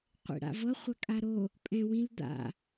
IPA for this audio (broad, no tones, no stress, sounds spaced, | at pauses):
qʷ ḛ ɽ a̰ v ɤ χʷ a kʼ a ɾ o | pʼ ɛ̃ w ĩ l d̪ a̰